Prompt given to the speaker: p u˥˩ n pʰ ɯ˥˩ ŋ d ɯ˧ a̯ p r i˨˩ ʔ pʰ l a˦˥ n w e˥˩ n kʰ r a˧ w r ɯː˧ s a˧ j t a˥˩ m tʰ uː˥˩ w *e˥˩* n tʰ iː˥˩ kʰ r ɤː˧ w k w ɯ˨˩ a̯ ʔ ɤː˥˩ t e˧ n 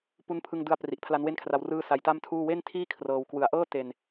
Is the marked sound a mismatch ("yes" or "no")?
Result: no